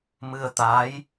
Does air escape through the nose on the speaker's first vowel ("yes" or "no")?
no